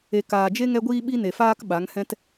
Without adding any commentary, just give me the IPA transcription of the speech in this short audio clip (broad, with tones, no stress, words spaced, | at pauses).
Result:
e˨ kaː˨d͡ʒe˦ ŋɛ˦ɡʷiː˦ ɓi˦ne˨faː˦k ɓa˨˦ŋhɛ̃˦t